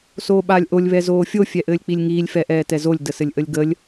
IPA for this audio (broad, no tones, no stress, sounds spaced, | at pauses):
s oː ɓ aː lʲ ʔ o lʲ β ɛ z oː fʲ o fʲ ɛ ʔ ɘː lʲ k͡p i lʲ ŋ iː lʲ f ɛ ʔ ɛː t ɛ z o lʲ d ə s ɘ lʲ ʔ ə lʲ ɡ ə lʲ